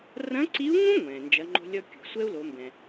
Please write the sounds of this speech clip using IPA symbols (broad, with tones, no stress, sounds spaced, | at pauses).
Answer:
r ɐ̃˧˥ ǀ i˧˥ u̯ ŋ ũ˥ ŋʷ ɛ̃ː˩ n d͡ʒ ɐ˩˧ ŋ͡ǃ o̤˧ lʲ ɔ˧ kʲ ṳ˩ sʷ ɛ˥ u̯ l o˩˧ m b ɛ̃˩